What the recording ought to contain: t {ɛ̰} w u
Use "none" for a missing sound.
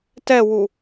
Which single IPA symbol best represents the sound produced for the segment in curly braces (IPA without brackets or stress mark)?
ɛ